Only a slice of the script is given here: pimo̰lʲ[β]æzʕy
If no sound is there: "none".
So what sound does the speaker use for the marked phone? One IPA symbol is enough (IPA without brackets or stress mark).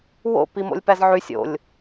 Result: p